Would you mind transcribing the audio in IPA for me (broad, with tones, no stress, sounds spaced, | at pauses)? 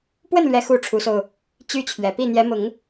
p w ə˥˩ n l ɥ ɛ˥ x u˥ ʈ͡ʂʰ u˧˥ s o˧ ʊ̯ | t͡ɕ y˥ t͡ɕʰ ɥ ɛ˨˩ p i˥˩ n̪ j ɛ˧˥ m ʊ˨˩˦ ŋ